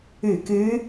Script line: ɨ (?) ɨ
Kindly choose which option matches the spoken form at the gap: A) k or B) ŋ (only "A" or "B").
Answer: A